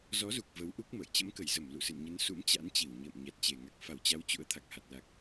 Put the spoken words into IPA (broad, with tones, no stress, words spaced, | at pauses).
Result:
zɔ˨˦zu˨˩k̚ və˨˦wʔu˦˥k̚mə̰ː˧˨j t͡ɕə̰˧˥mkə˧˩jzə˧˩m lṵ˧˨sɨ̰˧˨n ɲə˨˦n sṵ˧˥mt͡ɕa̰˧˥nt͡ɕi˧˩w ɲə̰ː˧˨m ɲa˨˩t̚t͡ɕe˨˩ ŋa˨˩k̚fa˧˩wt͡ɕa˨˦w t͡ɕṵ˧˥ə̯ t̪ʰa˨˩k̚ha˨˩t̚la˨˩k̚